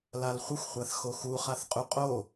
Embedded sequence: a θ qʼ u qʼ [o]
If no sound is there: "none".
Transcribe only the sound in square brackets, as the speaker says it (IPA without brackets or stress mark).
o